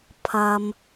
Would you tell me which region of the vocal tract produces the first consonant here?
lips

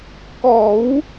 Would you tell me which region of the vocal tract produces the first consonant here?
velum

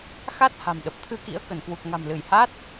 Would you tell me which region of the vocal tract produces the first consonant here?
velum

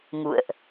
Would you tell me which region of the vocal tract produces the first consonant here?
velum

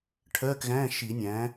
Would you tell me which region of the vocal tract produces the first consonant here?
retroflex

